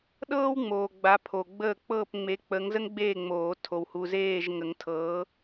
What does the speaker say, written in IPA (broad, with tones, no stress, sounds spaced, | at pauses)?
ɗ ɤː˥ w ŋ͡m oː˨ ɡ͡b a˨˥ pʰ o˨ ɡ͡b əː˥˨ k͡p ɤː˥˨ p ŋ͡m e˨˥ k͡p ə˨˥ ŋ z ə˥ ŋ ɡ͡b eː˥˨ ŋ͡m oː˨˩˦ tʰ o˨ w h u˨ z eː˥˨ ʒ ŋ ə˨˩˦ ŋ tʰ ɤː˨˥